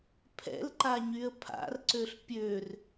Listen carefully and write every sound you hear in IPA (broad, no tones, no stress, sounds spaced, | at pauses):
pʰ ɛ̰ l ǃ a ɲ y ə̯ pʰ a̰ r ǀ ø ɬ pʲ ø r